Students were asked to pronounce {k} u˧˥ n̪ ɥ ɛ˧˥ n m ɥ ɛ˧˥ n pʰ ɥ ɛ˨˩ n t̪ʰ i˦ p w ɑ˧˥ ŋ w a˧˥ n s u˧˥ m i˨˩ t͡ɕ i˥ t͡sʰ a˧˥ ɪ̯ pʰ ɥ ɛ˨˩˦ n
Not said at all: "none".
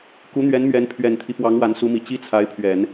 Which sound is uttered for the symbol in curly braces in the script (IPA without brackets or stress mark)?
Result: k